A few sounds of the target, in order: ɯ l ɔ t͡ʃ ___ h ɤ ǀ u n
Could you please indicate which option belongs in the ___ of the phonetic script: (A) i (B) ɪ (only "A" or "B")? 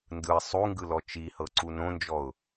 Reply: A